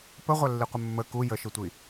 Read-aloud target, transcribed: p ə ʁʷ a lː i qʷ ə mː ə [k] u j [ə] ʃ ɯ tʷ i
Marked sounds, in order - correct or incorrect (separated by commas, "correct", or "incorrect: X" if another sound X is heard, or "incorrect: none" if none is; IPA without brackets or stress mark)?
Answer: correct, correct